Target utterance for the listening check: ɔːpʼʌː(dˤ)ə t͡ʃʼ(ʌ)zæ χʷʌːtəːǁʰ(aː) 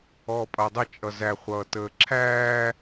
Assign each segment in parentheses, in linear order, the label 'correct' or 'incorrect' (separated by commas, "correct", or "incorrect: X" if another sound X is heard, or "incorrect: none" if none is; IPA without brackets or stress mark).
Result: correct, correct, incorrect: æː